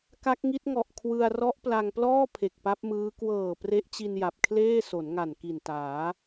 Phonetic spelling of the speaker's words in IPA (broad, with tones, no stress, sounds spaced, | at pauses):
k a˦˥ k̚ ŋ i˦˥ t̚ ŋ ɔ˨˩ ʔ kʰ w ɯ˧ a̯ r ɔ˦˥ ʔ p l a˧ ŋ p l ɔː˥˩ pʰ e˨˩ k̚ p a˦˥ p̚ m ɯː˦˥ k w ɤː˨˩ p r e˦˥ ʔ t͡ɕ i˧ n j a˨˩ p̚ kʰ l eː˥˩ s o˩˦ n ŋ a˨˩ n k i˨˩ n t aː˩˦